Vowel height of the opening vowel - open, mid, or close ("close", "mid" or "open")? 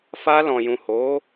open